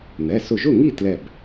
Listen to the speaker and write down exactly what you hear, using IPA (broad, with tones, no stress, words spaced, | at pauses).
n̪ɛ˩˧˩sʊ˧˩ʒʊ˥˨ŋi˥˨ tlɛ˧˩b